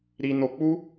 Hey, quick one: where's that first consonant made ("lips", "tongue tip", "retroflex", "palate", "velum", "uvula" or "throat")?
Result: tongue tip